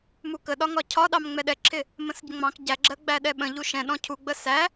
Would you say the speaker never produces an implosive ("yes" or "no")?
no